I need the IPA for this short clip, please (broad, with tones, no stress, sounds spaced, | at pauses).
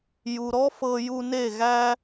j u˨ ɾ ɔ˦ f ɤ˧ j u˧ n e˦˨ ɣ æ˦